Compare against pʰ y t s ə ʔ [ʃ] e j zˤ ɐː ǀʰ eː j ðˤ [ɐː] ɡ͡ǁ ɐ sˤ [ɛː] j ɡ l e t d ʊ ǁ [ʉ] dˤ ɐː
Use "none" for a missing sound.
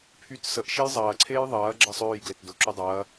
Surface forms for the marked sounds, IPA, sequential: ʃ, ɐː, øː, ø

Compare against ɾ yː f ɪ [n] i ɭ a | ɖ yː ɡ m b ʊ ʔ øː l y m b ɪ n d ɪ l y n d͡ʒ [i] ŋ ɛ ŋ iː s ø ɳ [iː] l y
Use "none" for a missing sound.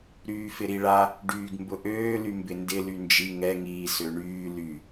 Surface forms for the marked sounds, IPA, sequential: ɾ, i, yː

